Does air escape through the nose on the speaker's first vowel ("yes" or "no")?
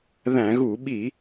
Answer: yes